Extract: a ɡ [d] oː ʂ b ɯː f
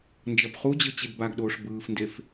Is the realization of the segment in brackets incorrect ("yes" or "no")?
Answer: yes